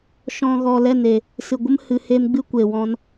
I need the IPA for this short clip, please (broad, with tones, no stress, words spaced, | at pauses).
ʃɔ̃˨ ɣɔ˨lɛ˦˨ne˨ | sɨ˨ ɡʷə˦m hɨ˨heː˧mɡ͡bɨ˦ kʷe˨wɔ̃˧n